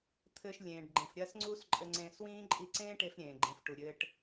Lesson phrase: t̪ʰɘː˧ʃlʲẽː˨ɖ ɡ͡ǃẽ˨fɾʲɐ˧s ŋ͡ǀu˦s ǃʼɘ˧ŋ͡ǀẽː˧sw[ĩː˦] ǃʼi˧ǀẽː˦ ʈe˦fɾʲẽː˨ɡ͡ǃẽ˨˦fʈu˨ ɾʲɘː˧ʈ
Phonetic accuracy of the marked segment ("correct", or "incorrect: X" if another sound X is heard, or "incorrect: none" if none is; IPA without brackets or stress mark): correct